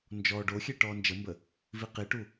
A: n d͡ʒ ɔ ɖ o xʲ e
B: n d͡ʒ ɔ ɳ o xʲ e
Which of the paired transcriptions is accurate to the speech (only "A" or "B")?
A